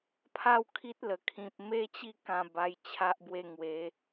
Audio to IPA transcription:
pʰa˥˧wkʰi˦t̚lə˨˩kʰĩ˨p̚ me˦t͡ɕi˥˧ kã˨˩ ba˧jt͡ɕʰa˦ʔbwe˥˧ ŋwe˨˦

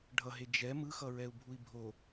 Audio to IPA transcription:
ɖʱʌɦe d͡ʒɛ mɯxʌɹɛu̯bʱui̯ bʱo

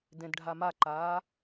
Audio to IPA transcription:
dẽdɖʱamaǃaː

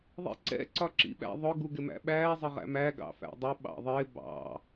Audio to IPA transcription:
ðˤḭǀɛ̰ ǀɒǁḭɓæ̰ðˤʊ ɡuɡɪmæ̰ɓæː zˤəʁæ̰mæ ɡɑ̰fæ̰dˤʊ ɓɑ̰ðˤɪː bɑ̰

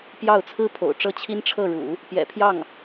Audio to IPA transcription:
pjɑ˥˩ʊ̯ t͡sʰɹ̩˥pʰo̰˨˩ʊ̯ʈ͡ʂɤ˥˩ t͡ɕʰi˥nʈ͡ʂʰɤ˥˩ɻṵ˨˩˦ | pjɛ̰˨˩pʰjɑ˥˩ŋ

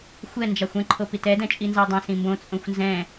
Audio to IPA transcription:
xʷɛ nd͡ʒɑxʷɛ̃ ǃʰopitɛ dɛ̃t͡ʃʼinzɑdˤɑ̃ sĩmbõ t͡sʼõxʷnzɛ̃

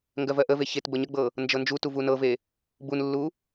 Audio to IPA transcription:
ŋɡɜvɜʔəve çetbə ɲəɡ͡bɤ | nd͡ʒɤnd͡ʒutu vunɤve | bunlːu

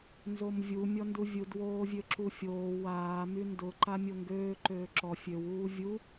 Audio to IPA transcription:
nzomvʲu mʲɔnduvʲud woːvʲøǁufʲoː waː myndʊ ǃamʲoŋɡøː ǃøːǁɔ fʲøw uːvʲu

